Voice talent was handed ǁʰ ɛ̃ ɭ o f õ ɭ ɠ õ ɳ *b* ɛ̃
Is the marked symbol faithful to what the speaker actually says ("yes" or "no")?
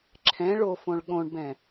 yes